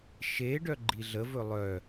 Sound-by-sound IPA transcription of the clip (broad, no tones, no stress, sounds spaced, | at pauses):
ʃ e ɖ œ ɡ͡ǃ i ɮ ə v ɵ lˠ œ